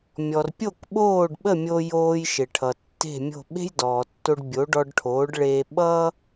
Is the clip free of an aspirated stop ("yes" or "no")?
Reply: no